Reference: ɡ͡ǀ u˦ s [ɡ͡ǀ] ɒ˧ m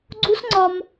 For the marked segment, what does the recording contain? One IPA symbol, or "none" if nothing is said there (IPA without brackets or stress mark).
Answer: ŋ͡ǀ